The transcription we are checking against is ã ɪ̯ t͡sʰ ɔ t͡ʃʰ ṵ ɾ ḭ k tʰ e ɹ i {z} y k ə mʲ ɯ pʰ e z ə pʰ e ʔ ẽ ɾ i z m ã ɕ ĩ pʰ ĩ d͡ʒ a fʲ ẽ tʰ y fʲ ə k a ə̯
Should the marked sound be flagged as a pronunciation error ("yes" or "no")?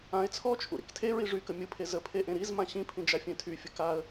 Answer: yes